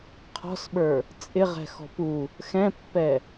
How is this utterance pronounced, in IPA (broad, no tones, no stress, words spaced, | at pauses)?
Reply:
qʰɔ̤sɓə˞ | t͡sʼɪʁɛ̤ xɔ̤pu | xɛ̃pːɛ